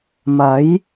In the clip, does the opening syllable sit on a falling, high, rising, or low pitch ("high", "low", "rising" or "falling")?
rising